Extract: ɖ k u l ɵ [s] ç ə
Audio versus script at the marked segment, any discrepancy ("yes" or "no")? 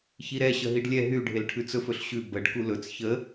yes